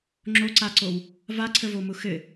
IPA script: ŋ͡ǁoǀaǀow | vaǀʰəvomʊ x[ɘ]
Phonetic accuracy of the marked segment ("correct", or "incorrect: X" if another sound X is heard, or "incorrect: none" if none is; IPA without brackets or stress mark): correct